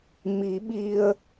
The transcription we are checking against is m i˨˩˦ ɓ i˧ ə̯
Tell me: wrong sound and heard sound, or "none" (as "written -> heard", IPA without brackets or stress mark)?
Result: none